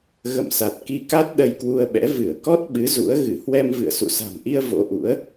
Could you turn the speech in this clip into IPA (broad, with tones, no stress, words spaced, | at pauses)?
ɣə̰˧˨msa˨˩t̚ ki˧ka˦˥t̚ ɗə˧jkwu˧ə̯ɓɛ̰˧˥ vɨ˧˩ə̯kɔ˦˥t̚ ɓɨ˨˦zṵ˧˥ə̯ ɣɨ˧˩hwɛ˧mvɨ̰˧˨ə̯ sṵ˧˨sa̤˨˩mʔi˧ə̯ vo̰˧˥ʔṵ˧˥ə̯